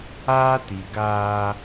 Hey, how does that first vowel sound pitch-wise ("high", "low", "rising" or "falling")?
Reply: high